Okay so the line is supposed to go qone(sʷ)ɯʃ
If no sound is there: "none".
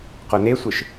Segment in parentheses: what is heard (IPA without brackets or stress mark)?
sʷ